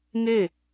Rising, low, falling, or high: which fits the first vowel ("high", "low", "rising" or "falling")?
falling